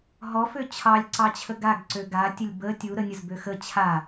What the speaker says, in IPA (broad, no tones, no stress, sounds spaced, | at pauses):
ɦ ɔ f ø t͡ɕʰ ɑ lʲ ǀ ɑ t͡ɕʰ ə ɡ a ɡ ǀ ø ɡ a tʲ ə lʲ b ə tʲ u ɾ ə nʲ ə z b ø x ə t͡ɕʰ a